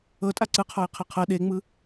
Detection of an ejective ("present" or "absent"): present